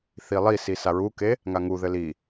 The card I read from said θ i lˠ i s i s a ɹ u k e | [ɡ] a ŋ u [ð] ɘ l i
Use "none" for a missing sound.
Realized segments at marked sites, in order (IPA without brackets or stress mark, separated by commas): ŋ, ð